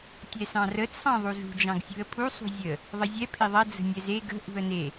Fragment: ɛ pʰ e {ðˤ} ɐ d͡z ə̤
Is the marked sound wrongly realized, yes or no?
no